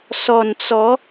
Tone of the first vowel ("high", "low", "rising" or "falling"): low